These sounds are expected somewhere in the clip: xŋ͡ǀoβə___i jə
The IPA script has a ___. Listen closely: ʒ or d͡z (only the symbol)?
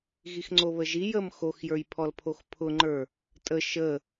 ʒ